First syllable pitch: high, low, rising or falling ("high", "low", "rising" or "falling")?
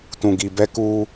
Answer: low